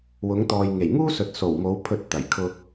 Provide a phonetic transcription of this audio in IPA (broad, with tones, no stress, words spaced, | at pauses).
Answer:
wʊ˨˧ŋt̪ɔː˨jŋe˨˩j ŋuː˥sɵ˨t̚ so˨˩wmo˨˧w pʰɵ˧t̚t̪ɐ˨˩jkʰʊ˧k̚